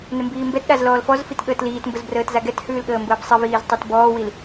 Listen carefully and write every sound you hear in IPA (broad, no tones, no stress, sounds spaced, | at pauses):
n ɘ m b iː m b ɛ t ɗ a z l ɔː l f ɔ z f i t ɠ əː t l iː t m b ə z b r əː t z a ɡ ɛ t h ʉː l ɠ əː m b əː b sˤ ɘ v iː z tˤ i t b ɔː w i l